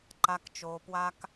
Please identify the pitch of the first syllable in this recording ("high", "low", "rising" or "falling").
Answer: low